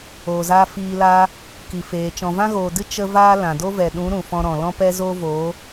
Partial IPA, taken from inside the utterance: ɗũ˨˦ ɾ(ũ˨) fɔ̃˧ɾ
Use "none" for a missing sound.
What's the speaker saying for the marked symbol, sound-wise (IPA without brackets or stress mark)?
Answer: ũ˨